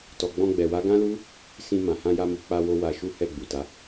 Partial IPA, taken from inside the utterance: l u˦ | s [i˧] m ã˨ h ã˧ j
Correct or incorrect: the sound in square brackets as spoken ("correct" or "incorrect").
incorrect